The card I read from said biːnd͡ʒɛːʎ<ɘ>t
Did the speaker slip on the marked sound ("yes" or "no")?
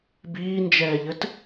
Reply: no